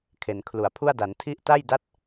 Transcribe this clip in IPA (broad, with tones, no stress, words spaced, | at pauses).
kʰe˩˦nkʰlu˨˩a̯pʰu˥˩a̯ da˩˦ntʰi˦˥ʔta˥˩j da˥˩t̚